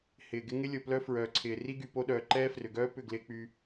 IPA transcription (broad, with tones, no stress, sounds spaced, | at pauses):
h ɪː˨ ɡ ɪ˦ ŋ ɪ˦ lʲ o˨ p l œ˦ f ɹ œː˨ ǀʰ ɪː˨ r i˦ ɡ y˨ p o˦ ɗ œː˨ ǃ ɛː˦ f r ʏ˨ ɡ œː˦ p ʏ˦˨ ɡ l ɪː˦ k͡p y˦